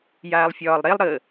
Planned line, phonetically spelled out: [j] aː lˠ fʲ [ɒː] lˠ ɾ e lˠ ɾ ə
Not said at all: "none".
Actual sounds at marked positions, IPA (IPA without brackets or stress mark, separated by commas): j, ɒː